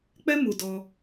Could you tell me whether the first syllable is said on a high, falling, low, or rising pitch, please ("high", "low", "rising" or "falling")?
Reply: high